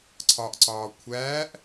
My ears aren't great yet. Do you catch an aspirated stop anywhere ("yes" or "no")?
yes